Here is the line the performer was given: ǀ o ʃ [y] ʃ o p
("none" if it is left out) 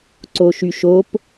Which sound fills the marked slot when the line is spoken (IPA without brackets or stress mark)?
y